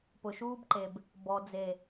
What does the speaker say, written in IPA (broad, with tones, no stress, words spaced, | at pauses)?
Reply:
pʊ˨ʃuː˦bǃe˨b | bɔ˨d͡ze˨